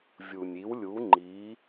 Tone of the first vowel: low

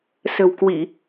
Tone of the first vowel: low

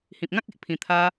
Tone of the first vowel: low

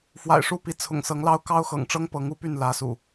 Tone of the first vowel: low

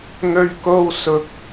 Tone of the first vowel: low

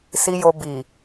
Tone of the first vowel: low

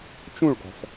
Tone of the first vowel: falling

